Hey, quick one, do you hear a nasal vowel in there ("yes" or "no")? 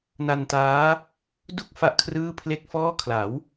no